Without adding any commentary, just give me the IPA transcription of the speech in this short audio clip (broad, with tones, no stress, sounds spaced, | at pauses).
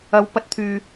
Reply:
ɐ˧ w p ɐ˧ t̚ t̪ʰ yː˨